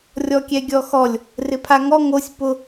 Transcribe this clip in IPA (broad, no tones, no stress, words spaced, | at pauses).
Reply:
rʲɔkʲɛɡʲɔxɔlʲ | rɪpʰaŋɔ ŋosʲ pʊ